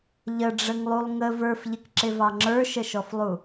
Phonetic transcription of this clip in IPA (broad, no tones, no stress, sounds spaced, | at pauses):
ʎ ə ɖ͡ʐ ə ŋ lˠ u lˠ ŋ ə v ə˞ f ʎ ɪ k ǁ ɪ v ɑ ŋ͡ǁ ə˞ ʃ ə ʃ ɔ f lˠ u